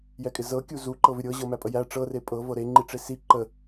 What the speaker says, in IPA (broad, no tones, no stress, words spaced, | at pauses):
jɛkʼɪzɤ kʲuzu ǃɤvɪɾʲɤ ʑɤmæpʼəjæ ʈ͡ʂɤ repʼɤ vɤɾe ŋ͡ǃiʈ͡ʂesi ǃə